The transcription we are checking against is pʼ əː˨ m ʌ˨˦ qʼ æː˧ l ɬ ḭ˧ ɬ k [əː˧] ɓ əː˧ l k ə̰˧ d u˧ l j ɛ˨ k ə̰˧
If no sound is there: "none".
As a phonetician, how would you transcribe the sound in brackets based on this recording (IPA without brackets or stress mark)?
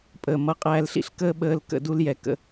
əː˦